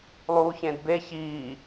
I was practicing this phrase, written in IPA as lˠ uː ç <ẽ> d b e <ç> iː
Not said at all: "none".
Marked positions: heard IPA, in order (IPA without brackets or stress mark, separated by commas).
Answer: ẽ, ç